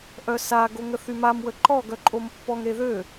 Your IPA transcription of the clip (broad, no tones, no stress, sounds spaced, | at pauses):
ʔ œ s a ɡ o ŋ ə θ y m a m w ə ǃ ɔ ɡ œ ǃʼ o m pː ɔ ŋ ɾ e ð ø